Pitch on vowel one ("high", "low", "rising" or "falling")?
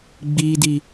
high